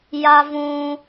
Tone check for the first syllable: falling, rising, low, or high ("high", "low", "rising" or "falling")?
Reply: high